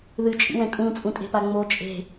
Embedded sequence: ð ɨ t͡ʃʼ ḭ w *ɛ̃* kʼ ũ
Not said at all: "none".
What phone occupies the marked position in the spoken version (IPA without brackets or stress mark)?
ɛ̃